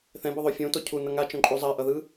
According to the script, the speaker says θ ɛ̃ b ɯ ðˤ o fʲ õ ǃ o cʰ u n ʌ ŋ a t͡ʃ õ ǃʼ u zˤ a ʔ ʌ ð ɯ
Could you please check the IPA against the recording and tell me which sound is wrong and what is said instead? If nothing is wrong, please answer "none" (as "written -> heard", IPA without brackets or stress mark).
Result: ǃ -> t